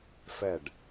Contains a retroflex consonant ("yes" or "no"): yes